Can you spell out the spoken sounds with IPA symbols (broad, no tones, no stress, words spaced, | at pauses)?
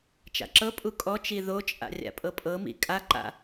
t͡ʃa̰ǁɤpʼu kʼɔt͡ʃi ðot͡ʃʼa̰ rʲa̰pʼɤpʼɤmḭ kʼaǃa̰